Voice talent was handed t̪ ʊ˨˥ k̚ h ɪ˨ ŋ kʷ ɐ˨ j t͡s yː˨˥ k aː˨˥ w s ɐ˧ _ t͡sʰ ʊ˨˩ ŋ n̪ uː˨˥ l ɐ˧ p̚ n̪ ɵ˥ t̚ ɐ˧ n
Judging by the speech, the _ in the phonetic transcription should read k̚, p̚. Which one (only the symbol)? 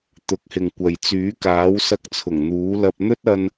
k̚